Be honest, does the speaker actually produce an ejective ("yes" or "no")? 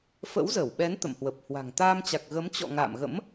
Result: no